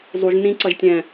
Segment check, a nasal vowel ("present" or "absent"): present